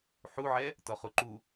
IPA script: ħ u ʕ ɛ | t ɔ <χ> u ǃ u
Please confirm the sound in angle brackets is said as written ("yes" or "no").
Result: yes